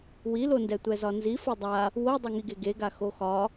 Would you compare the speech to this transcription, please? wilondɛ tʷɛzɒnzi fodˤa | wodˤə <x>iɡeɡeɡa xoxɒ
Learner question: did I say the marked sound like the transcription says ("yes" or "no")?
no